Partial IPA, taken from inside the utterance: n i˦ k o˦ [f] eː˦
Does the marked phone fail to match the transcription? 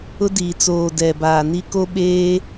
yes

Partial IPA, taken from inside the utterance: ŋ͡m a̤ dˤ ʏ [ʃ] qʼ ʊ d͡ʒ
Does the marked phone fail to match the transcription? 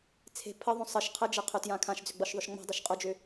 no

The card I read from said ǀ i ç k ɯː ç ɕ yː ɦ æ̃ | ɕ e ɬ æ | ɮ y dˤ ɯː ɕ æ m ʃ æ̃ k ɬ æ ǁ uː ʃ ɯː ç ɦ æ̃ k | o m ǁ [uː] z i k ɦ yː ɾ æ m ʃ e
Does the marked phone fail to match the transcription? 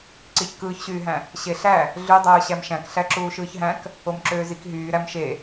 yes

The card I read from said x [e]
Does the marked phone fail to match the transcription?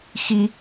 yes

